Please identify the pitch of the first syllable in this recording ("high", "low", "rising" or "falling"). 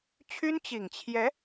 high